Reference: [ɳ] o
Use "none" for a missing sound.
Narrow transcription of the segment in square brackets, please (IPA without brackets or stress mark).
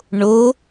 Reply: ɳ